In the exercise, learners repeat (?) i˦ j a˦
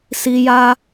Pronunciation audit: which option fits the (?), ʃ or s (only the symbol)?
s